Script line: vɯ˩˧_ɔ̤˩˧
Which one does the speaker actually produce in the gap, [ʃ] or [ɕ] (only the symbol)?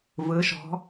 ʃ